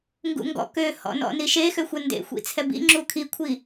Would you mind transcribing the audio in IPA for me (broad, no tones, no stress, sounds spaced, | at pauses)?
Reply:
ŋ ɡ ṵ ŋ ɡ ɔ̰ k ø h ɔ̰ n ɔ̰ n i ʃ e x ø xʷ ɜ n d ḛ xʷ ḭ t͡sʰ ɛ b ḭ ŋ͡ǁ u kʰ i kʷʰ i